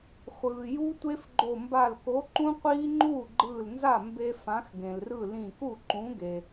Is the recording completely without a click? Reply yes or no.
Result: no